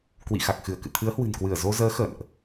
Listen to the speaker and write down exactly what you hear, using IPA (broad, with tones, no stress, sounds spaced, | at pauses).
k w ḭ˧˨ x a˨˩ k̚ x ɨ˧˩ ə̯ k ɨ̰˧˨ t̪ʰ ɨ˨˦ ə̯ h w ɨ̤˨˩ n k w ɨ˧˩ ə̯ z o˧ z əː˨˦ x ə̰˧˨ n ʔ